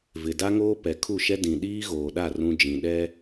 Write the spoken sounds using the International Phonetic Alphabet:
v ɪ˨ d a˦ ŋ oː˦ p ɛ˨ kʰ u˦˨ ʃ ɛ˦ d ĩ˨ ɗ iː˦ ɣ oː˨ ɗ a˦˨ r ũ˦ d͡ʒ ĩ˨ ɗ ɛ˦

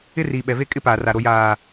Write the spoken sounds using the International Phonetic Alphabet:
ɪ˦ r iː˨ ɓ ɛ˨ v e˦ kʼ ɪ˦ p aː˨ r a˨ ɾ o˨ j aː˨

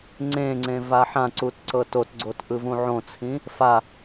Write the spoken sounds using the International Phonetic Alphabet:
ŋ͡ǀ ẽ ŋ͡ǀ ẽ v a ħ ã ǀ u t ǀ ɤ t o t ɡ͡ǀ o t ʔ ɯ v ũ ʕ õ t͡sʰ ĩ | f a

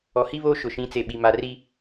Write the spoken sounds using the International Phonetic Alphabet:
ɔ˨ h i˦ β oː˦ ʃ ʊ˨ ʃ ĩ˨˦ t͡s e˨ ɓ i˨ m a˨ r i˦

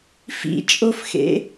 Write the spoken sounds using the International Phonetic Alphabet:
f ḭ t͡ʃʼ o f x ḛ

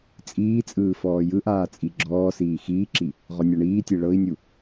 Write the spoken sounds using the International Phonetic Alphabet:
t͡sʼ iː t͡sʼ ɯː f ɔː j ɯ ʔ aː t͡sʼ i ɡ͡ǁ ɔː s iː x iː ǁ i | ʁ ɔ nʲ a ɳ iː tʲ e ɭ ɤ i̯ nʲ u

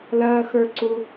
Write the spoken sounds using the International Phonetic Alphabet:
l ɐː˥ x ə˞˥ ǀ u˥

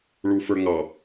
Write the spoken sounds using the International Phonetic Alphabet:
ɭ u f ə˞ ŋ ɑ

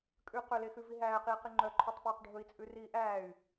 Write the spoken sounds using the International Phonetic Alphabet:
kʼ ʉ q ɵ l e x ʉ v i ɦ æː q iː q i ŋ͡ǃ œ ǃʰ œ tˤ p ɵː q ɖʱ ɵ i̯ t͡sʼ ʉ r iː ʔ æː y̯

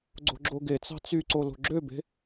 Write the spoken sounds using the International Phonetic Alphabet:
ɡ͡ǀ o̤ ɡ͡ǁ o ɡ e t͡s ɑ̤ t͡s y ǀ o l o̤ ɡ͡ǁ ø b e̤

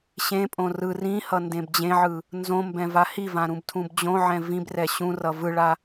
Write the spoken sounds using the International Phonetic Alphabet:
ɕ ẽ pʼ õ r ɯ r ĩ h ʌ n d ẽ b d͡ʑ ẽ ʕ ɯ | n z õ m b ɛ̃ v a h i v ã ɾ ũ b tʰ ũ b d͡ʑ õ ʕ ɛ̃ v ĩ b r ɛ ɕ ũ r ʌ v ɯ ɭ a

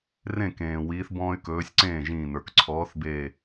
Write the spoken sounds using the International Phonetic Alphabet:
r ẽ˥˩ k ẽː˩ w iː˨˦ θ b ɔ̃ː˦ y̯ k ɵː˨˦ sʲ ǀ ẽː˥˩ ʒ ĩː˧˩ n ə˞˩ k ǀʰ ɔː˨˦ θ b e˧˩

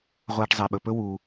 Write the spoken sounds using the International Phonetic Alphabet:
ʁʷ aː˧ ʈ zˤ e˩ ɓ ɵ˩ p ɵ˥ w uː˩

